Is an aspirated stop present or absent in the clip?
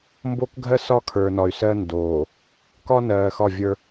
present